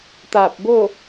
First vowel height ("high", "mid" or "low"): low